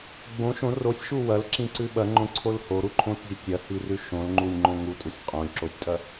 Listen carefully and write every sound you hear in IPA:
ɡ͡bõ ʃõ rosʲʃu wɐlǁĩǀʉ ɓɐŋ͡ǃõǀʰol hoɾuǃʰõtzʲɐ tʲɐhirʉ ʃõlŋ͡ǃulʲŋ͡ǃõ ŋutʼusʲ qʼõlʲǁosʲtʼɐ

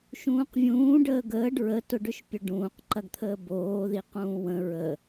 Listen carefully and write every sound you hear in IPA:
ʃũːqvʲũːɖəː ɡəːɖ ɹə tʊɖʏʃpʲʊɖũːq ǃɐɡt̪ʰəːboːði qũːwə̃ ɹə

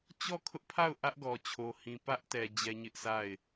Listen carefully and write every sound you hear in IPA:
t͡ɕɔ˦˨kʰʊ˦ʔpʰa˦˨ʊ̯ ʔä˦ʔɡɔ˨t͡ɕʰo˨hĩ˨ pä˦ʔtɛ˨ d͡ʑɛ˦ɲɪ˦ʔsʰa˦˨ɪ̯

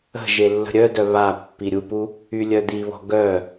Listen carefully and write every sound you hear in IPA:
ə̤ ʒelːə̤ɾʲœdœ βa pːiɾʲupu | ylʲœd̪iβɔ̤ ɡœ

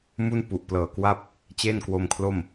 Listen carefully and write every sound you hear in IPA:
mu˥˩npu˨˩ʔplɤː˨˩kwa˥˩p̚ | t͡ɕe˥˩nkwo˧mkʰlo˥˩m

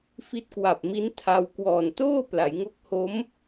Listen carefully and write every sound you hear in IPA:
fi˦˥t̚kwa˨˩p̚mi˦˥n tʰa˧w kwɔː˨˩ntoː˥˩ pla˩˦jŋo˦˥k̚ho˦˥m

